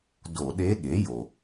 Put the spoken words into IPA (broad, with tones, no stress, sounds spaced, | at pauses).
d o˧˩˧ ɗ e˧˥ ɠ e˩˥ j o˩